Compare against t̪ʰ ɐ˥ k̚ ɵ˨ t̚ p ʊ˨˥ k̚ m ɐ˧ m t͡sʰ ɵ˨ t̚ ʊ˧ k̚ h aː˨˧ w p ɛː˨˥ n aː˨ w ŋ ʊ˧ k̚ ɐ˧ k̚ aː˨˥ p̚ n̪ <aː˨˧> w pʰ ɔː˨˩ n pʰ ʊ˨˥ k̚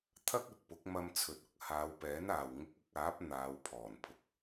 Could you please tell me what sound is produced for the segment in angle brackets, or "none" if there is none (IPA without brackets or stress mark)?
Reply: aː˨˧